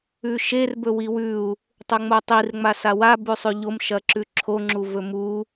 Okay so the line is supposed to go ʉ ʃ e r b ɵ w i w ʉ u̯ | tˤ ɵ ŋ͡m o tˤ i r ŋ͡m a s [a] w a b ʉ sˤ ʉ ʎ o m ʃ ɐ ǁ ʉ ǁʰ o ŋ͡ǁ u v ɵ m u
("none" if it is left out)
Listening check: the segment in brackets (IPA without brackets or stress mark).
a